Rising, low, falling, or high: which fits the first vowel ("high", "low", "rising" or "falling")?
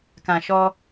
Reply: low